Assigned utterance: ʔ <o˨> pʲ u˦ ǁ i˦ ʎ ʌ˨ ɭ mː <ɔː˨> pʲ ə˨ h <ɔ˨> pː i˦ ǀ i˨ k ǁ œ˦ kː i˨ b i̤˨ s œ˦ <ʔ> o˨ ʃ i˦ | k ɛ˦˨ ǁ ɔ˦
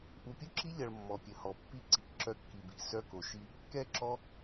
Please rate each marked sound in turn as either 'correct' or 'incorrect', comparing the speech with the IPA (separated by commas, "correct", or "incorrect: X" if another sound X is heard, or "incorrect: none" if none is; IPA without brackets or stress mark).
incorrect: u˨, incorrect: ɔ˨, correct, incorrect: k